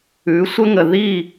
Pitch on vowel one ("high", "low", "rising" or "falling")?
rising